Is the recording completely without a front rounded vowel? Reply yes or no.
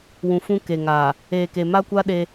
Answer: yes